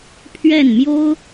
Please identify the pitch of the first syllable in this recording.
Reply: falling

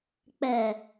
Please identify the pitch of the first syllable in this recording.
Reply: low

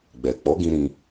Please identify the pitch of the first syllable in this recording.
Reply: low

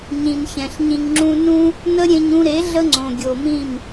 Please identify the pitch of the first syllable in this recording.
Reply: low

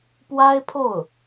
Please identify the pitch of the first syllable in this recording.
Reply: high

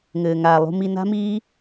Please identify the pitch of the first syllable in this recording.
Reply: low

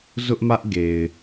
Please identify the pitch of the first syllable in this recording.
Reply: high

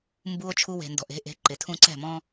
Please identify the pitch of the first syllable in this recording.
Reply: high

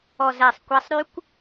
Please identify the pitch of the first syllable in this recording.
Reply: low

